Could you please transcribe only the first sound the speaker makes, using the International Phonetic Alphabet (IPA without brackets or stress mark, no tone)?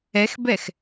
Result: ɛ